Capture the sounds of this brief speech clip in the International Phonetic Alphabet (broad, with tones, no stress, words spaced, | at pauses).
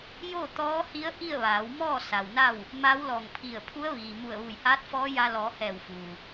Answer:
joː˥˨t̪ɔː˧˥hi˧˥ə̯ ʔi˥˨ə̯ʋaː˩˧wmɔː˥˨ sa˩wna˥˨w | ma˧˥wlɔː˧˩ŋpʰi˧˩ə̯pʰu˧˥ə̯ ʋiː˩ mu˧˩ə̯ʋu˧˩jhaː˧˥t̚ fɔː˧˥ja˧ lɔː˩˧ hɛː˧˩wfuː˩